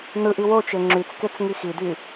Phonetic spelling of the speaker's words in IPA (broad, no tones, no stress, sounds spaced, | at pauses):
n ɯ ʔ i w o t͡ʃ e ŋ͡ǁ y t͡s k e t͡s ŋ i x i d y